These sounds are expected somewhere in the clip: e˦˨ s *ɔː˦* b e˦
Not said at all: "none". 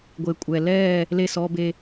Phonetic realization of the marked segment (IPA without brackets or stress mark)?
ɔː˦